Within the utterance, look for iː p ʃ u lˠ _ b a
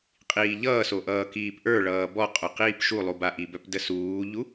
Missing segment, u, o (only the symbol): u